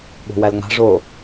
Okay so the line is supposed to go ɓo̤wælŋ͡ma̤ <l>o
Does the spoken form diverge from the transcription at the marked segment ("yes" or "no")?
yes